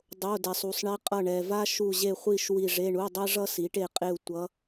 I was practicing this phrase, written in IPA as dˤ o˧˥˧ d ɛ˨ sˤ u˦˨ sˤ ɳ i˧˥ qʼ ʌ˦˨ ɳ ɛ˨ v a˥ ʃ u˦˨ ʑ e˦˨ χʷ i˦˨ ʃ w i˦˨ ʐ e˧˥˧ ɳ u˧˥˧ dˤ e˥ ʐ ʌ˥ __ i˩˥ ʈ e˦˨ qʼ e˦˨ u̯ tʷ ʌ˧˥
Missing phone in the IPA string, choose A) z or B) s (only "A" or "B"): B